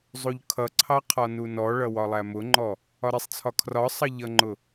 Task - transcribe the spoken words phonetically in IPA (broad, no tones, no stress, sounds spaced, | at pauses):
zˤ u ʎ kʰ ʌ ǀʰ ɑ qʰ ɒ n u n ɔ ɭ ʌ w ɒ lˠ æ m ʊ ŋ͡ǃ ɔ | ɒ ɾ ɪ sˤ t͡sʰ ɒ kʰ r ɒ sˤ ʌ ʎ ʌ ŋ͡ǃ ʊ